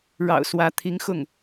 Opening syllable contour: low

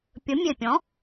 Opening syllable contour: rising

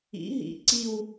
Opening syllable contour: rising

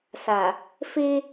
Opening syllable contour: low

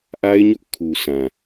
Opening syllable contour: high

